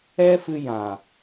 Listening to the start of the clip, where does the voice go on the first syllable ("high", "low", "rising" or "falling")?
high